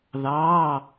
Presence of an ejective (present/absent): absent